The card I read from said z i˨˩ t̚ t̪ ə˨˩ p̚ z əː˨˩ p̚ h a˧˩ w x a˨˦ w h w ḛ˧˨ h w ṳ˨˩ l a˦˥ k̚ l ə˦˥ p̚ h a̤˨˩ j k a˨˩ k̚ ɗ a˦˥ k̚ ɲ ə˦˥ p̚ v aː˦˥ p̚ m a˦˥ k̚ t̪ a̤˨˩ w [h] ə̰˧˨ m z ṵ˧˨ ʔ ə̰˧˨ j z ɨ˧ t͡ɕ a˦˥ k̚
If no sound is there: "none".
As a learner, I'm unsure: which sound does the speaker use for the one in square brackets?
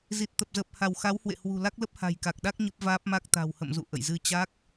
h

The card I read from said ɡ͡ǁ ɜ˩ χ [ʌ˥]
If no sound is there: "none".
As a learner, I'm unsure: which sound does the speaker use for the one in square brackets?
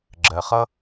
ʌ˥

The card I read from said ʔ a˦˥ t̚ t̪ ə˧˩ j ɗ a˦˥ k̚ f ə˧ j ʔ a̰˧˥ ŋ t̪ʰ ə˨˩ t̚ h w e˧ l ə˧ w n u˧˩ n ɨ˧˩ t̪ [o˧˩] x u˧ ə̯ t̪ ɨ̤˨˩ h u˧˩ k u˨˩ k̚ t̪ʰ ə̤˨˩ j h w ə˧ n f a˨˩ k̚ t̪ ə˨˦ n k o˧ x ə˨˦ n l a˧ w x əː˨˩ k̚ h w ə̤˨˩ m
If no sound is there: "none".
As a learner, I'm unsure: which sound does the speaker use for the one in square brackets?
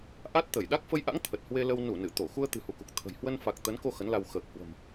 o˧˩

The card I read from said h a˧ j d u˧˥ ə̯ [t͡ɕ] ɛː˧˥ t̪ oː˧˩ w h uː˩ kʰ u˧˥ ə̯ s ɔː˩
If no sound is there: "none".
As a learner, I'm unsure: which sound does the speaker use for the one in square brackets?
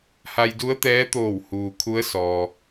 t̪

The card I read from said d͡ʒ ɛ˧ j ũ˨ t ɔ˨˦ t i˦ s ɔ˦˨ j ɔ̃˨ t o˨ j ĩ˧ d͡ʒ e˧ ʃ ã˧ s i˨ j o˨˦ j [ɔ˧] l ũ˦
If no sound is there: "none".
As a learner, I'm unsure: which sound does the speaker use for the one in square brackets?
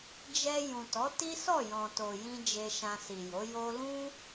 o˧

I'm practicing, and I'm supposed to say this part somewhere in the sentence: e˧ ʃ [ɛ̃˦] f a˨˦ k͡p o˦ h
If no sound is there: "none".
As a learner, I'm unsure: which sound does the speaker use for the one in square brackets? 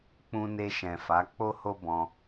ɛ̃˨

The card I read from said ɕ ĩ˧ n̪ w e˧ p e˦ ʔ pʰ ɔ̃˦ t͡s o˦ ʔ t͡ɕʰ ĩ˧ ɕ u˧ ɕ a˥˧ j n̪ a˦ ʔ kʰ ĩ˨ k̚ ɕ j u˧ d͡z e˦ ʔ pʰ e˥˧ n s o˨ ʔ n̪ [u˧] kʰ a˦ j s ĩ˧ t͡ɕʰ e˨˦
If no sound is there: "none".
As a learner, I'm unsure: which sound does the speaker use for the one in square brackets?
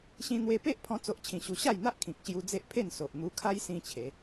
u˧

